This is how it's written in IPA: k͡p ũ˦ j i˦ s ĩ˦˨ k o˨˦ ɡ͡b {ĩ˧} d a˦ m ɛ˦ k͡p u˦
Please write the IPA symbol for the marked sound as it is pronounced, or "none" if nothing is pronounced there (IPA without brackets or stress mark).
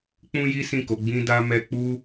ĩ˦